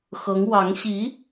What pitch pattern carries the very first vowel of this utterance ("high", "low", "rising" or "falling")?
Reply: rising